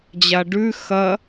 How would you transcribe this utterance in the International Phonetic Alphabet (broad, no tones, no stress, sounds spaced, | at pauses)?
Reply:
d͡ʑ a ɖ ʉ x ɐ